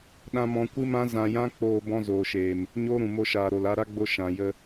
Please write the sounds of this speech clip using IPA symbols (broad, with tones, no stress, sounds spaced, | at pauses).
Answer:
ɗ ã˦ m ɔ̃˦ kʷ ɨ˦ m ã˦ z ã˧ j ã˦ k͡p oː˧ b ɔ̃˧ z oː˨ ʃ eː˨ m | ɲ oː˦ ɾ ũ˨ m o˧ ʃ aː˨ ɾ o˨ l a˧ ɾ a˦ ɡ͡b o˧ ʃ ã˨ j ə˧